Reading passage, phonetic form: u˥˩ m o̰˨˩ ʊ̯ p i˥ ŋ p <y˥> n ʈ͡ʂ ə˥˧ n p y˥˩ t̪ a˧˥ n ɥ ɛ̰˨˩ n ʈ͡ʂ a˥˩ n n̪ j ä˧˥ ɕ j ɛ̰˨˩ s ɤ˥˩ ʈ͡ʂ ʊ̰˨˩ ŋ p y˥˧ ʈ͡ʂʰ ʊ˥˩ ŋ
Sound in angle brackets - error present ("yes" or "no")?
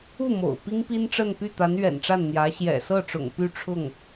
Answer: yes